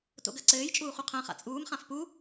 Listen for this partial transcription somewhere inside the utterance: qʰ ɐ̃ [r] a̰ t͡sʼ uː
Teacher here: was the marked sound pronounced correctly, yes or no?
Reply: no